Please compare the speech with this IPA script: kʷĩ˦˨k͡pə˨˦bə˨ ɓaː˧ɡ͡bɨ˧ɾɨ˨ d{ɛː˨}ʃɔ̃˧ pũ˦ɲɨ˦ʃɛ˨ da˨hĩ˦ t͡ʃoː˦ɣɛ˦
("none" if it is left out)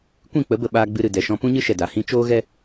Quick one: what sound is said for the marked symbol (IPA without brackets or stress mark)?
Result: ɛ˨